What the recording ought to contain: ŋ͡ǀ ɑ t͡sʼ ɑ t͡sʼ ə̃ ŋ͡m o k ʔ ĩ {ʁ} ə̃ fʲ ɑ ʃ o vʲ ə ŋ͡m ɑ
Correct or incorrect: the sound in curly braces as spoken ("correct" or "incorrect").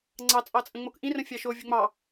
incorrect